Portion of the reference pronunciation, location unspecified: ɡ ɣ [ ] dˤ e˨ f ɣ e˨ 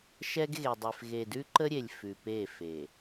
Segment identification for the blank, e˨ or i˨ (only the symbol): e˨